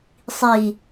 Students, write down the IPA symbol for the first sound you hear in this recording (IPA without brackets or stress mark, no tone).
sˤ